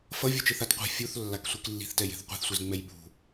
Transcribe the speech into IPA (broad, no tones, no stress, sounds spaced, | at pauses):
f ʌ vʲ u t͡ʃ ɯ θ a t qʷ e̤ fʲ u θ lː a k sʷ i k lː i̤ θ t ɛ j e̤ θ qʷ i̤ θ sʷ i z ŋ͡m ɛ j ɓ ṳ